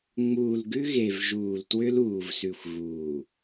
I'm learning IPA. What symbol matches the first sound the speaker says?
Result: ŋ͡m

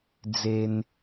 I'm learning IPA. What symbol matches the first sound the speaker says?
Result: d͡z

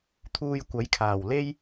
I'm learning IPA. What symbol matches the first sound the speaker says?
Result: t̪ʰ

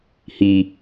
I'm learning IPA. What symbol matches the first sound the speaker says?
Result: h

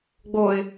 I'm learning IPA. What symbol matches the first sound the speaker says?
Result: ɡ͡b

